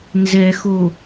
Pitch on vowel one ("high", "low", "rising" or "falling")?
low